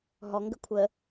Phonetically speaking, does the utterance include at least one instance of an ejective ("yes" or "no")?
no